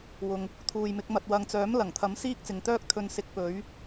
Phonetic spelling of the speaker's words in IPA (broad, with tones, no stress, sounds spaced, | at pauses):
w ʊ˨ ŋ | t̪ʰ uː˨ j m ɪ˨˥ k̚ m ɐ˧ t̚ w ɐ˧ ŋ t͡s œː˨˥ m l ɐ˨˩ ŋ t̪ʰ ɐ˨˥ m s iː˥ k̚ t͡s ɪ˨ ŋ t̪ œː˥ k̚ t̪ʰ ɵ˧ n s ɪ˧ k̚ p ɵ˨˧ ɥ